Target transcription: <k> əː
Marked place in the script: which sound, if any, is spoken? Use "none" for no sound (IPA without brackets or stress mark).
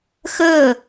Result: x